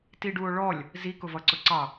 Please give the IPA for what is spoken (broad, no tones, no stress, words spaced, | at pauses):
tiɖuo̯ɭɔlʲ | zi kʊvʌǀʊǀɑ